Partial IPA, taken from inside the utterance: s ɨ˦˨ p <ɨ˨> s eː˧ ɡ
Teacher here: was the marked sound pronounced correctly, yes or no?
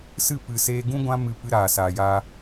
yes